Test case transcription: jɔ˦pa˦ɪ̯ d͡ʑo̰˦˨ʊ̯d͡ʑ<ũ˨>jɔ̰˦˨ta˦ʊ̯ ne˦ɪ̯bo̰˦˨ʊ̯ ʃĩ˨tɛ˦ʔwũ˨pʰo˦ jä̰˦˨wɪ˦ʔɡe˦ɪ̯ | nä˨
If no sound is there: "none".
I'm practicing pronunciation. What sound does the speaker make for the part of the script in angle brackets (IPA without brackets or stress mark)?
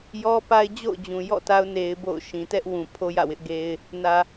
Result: ũ˨